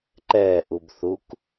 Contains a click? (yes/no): yes